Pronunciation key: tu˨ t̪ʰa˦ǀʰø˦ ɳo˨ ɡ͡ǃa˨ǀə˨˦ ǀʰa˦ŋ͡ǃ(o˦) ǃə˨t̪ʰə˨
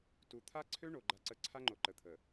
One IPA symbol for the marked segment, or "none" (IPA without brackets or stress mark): o˨